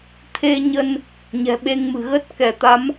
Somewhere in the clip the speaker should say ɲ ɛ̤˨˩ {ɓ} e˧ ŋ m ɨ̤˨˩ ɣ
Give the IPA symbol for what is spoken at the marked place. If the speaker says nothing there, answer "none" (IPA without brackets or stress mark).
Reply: ɓ